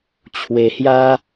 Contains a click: no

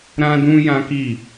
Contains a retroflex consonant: no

